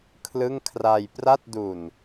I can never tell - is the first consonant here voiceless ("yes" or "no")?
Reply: yes